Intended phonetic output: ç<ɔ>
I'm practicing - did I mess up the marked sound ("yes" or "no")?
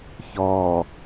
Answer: no